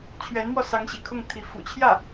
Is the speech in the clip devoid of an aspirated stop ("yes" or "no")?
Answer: no